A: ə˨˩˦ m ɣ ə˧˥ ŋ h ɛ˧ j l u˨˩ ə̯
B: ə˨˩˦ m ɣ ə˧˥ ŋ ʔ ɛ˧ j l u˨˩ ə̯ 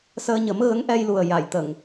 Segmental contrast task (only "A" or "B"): B